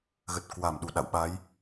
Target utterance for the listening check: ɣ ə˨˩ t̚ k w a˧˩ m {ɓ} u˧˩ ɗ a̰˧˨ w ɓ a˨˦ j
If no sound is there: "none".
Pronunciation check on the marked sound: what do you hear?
ɗ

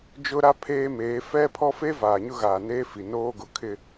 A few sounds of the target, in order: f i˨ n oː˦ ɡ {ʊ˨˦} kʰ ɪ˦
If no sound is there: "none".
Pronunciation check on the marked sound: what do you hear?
ʊ˨˦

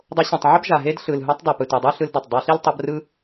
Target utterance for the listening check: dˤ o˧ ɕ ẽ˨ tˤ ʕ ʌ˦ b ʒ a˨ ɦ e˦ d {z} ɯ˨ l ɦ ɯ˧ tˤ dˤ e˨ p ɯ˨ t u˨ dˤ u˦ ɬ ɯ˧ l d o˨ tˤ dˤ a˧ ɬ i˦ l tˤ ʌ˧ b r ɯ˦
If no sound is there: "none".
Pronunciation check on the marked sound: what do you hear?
ɬ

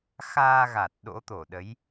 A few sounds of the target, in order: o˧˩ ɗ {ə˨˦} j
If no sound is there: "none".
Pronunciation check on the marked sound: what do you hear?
ə˨˦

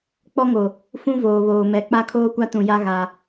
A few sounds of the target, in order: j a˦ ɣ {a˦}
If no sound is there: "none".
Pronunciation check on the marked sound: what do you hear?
a˦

